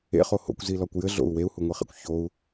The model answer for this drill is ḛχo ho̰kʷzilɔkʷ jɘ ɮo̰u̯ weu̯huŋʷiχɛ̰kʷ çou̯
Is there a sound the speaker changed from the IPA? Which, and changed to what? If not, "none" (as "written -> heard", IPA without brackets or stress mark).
ɛ̰ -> ḛ